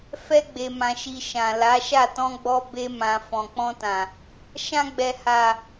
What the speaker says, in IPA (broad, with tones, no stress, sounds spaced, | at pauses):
f ɛ˧ ɡ͡b e˨ m ã˨ ʃ i˨ ʃ ã˨ l a˨˦ ʃ a˦˨ t ɔ̃˧ ɡ͡b ɔ˧ b e˧ m ã˨ f ɔ̃˨ k͡p ɔ̃˧ t ã˨ | ʃ ã˧ ɡ͡b ɛ˨ h a˨